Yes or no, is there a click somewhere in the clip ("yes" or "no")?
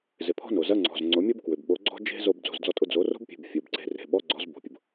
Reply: yes